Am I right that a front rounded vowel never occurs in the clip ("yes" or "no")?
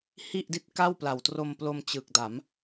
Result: yes